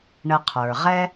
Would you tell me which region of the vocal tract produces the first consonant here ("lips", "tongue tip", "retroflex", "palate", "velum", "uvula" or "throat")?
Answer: retroflex